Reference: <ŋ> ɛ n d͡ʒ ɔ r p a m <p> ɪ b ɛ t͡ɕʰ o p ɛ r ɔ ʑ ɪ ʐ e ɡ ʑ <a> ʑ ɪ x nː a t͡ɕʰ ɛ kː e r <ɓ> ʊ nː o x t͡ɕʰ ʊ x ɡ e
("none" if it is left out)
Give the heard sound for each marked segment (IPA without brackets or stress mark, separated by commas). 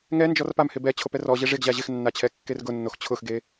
ŋ, h, a, ɡ